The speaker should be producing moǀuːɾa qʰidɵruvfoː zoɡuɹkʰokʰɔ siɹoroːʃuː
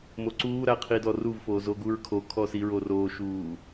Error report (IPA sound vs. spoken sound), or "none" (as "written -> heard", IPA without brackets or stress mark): ɵ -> ɔ